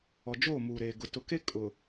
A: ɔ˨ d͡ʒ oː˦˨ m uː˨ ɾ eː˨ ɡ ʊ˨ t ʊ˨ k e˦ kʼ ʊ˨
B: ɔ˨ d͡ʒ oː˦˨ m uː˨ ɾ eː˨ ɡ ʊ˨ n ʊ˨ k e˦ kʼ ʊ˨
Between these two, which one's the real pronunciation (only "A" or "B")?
A